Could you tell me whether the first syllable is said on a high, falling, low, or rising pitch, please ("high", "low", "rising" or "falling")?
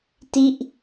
falling